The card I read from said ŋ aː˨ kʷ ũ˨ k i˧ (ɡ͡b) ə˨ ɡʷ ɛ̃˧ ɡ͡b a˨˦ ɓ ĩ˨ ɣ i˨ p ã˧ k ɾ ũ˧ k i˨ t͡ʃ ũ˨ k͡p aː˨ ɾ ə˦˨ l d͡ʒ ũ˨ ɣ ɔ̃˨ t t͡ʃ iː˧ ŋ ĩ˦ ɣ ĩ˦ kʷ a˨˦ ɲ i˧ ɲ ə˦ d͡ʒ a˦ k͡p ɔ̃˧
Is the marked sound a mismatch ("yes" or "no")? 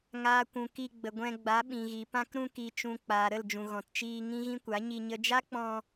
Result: no